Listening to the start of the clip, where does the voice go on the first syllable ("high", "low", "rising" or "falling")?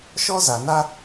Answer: high